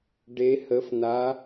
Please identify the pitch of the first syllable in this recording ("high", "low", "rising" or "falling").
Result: rising